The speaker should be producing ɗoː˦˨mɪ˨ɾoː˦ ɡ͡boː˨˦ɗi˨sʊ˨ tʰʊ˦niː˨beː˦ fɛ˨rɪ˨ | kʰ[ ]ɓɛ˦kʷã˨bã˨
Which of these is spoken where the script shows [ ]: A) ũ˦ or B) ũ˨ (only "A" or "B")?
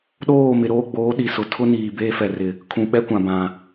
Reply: B